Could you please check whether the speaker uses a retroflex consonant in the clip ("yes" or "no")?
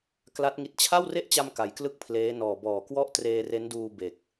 no